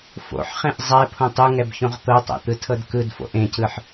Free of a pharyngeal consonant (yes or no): no